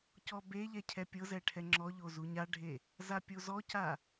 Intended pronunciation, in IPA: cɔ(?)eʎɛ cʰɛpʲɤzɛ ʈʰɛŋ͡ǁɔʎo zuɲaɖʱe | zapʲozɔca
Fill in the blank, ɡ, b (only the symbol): b